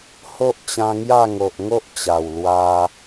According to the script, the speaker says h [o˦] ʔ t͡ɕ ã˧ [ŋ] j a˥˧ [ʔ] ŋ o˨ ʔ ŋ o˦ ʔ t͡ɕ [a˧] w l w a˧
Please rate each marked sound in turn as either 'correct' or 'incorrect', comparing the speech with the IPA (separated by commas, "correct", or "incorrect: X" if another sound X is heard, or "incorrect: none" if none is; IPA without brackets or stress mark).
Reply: correct, correct, incorrect: none, incorrect: a˨˩